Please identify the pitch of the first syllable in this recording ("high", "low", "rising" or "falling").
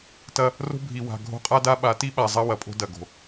high